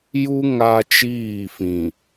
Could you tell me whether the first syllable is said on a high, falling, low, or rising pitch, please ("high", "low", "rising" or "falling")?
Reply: high